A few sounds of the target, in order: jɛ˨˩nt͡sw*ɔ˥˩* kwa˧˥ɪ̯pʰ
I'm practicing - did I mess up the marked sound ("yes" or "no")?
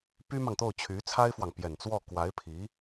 no